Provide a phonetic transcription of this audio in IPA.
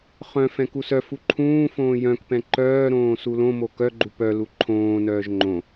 χ œ̃ f ɛ̃ k u s œ f u ǃʰ ũː f õː j œ̃ k p ɛ̃ ǃ œː ɾ õː s u l õ m o k œ ɡ͡ǃ u p œ l u ǃʰ õː n œː ʒ ŋ͡ǃ õ

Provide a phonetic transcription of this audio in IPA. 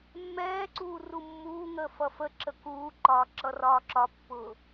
mː ɛː ǀ uː r u mː uː ŋ əː f ʌ f ə ǁ ə k uː ǃ ɒː ǁ ʌ r ɒː ǁ ɒ pː ʊː

